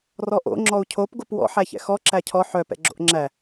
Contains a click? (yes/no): yes